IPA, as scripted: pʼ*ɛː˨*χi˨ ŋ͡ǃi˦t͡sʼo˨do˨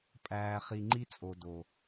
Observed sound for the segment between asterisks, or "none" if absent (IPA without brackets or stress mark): æː˨